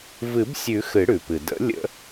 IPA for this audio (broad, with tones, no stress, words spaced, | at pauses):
vɨ˨˩˦bsʲʉ˨˩˦ xɨ˨˩˦ɽʉ˩pɨ˩ də̰˨˩˦ lʲə̰˨˩˦